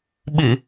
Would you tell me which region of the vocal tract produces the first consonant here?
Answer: lips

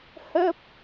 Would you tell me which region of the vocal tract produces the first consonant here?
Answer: throat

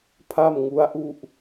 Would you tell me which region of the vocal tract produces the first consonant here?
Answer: lips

